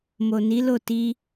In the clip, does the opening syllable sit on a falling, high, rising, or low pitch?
low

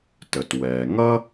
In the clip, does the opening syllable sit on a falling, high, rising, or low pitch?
low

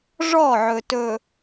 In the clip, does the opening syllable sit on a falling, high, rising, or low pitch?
falling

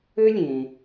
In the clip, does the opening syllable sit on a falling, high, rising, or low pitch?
high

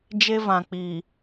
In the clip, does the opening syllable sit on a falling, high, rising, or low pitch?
high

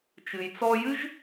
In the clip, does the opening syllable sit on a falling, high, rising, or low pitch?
low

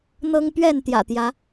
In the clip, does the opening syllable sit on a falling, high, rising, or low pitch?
high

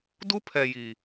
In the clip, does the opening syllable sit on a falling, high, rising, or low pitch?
high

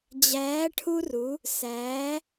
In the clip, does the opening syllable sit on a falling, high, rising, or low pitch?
rising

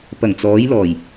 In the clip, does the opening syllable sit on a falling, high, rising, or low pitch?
low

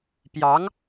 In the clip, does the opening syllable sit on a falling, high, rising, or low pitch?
rising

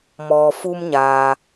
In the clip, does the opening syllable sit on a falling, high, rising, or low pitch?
low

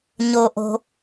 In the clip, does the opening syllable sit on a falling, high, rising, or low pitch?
high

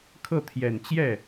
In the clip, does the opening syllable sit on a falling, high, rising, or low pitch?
falling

